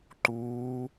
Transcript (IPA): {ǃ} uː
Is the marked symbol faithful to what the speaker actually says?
yes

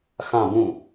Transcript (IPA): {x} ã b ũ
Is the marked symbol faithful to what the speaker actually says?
yes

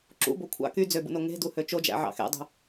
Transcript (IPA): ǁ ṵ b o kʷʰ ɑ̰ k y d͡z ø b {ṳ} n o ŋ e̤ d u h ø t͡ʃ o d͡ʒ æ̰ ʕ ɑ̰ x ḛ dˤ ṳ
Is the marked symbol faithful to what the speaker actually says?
no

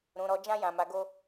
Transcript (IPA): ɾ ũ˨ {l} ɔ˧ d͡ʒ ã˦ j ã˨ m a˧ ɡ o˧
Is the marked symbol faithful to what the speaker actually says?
no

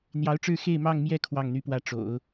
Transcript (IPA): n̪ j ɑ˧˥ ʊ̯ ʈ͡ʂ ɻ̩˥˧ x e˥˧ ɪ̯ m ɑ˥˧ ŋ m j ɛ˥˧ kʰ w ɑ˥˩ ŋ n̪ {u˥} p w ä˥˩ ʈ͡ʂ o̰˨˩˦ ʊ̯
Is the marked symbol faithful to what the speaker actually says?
no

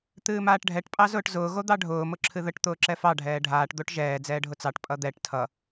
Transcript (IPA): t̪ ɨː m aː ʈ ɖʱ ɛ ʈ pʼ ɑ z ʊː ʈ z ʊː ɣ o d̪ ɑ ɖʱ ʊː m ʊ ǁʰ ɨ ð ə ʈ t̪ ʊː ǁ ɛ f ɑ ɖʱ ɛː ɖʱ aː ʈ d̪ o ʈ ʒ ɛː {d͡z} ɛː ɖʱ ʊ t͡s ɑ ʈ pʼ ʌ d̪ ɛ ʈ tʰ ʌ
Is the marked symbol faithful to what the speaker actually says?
yes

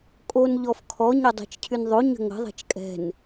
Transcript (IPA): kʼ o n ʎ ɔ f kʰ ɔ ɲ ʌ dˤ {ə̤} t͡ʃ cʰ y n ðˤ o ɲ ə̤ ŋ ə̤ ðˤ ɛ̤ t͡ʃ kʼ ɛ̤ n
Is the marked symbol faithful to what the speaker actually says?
no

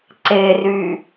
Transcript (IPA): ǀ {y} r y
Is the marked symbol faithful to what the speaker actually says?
no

